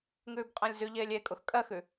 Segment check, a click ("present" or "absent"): absent